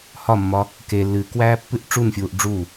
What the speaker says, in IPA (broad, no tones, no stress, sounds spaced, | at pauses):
h ɒ mː ɒ | k e lː ɨː k w æː pː ɨ ʔ ʈ͡ʂ u n fʲ uː ʔ ɖ͡ʐ u